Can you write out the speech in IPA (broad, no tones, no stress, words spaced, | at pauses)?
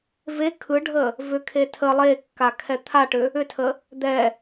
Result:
ve kʰɯɖʱə | vʏkʰe tʰə lˠekːakʰɛ t̪ʰaʈʏ | ʏtʰə | d̪ɛ